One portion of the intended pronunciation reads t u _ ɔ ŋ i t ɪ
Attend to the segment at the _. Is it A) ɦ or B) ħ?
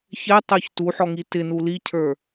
B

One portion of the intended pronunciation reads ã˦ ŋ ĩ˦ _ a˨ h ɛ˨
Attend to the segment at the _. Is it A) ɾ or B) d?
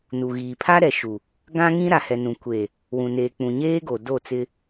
A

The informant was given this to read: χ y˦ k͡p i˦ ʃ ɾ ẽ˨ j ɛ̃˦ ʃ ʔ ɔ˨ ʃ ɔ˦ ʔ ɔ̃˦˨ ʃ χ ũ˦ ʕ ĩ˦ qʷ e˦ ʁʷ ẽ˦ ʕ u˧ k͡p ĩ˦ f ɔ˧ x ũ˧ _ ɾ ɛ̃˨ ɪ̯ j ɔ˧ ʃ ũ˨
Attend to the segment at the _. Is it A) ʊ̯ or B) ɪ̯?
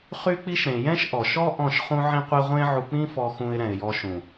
B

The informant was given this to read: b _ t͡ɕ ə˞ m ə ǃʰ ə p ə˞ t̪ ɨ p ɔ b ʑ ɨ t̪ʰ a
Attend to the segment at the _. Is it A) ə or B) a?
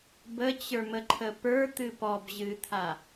A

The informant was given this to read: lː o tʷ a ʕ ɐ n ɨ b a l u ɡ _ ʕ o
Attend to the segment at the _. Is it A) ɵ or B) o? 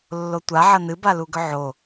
A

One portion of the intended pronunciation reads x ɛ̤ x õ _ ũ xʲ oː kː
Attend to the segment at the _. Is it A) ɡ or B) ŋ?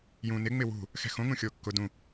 B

